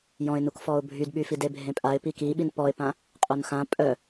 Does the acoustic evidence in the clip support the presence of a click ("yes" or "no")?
no